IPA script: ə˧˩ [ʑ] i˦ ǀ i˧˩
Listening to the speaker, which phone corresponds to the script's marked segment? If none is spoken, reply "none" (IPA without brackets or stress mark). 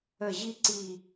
ʑ